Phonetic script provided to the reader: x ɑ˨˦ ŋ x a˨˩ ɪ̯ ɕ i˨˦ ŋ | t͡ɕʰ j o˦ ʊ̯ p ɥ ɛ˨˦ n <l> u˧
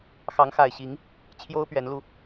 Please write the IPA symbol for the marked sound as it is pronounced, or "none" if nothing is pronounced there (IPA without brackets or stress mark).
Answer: l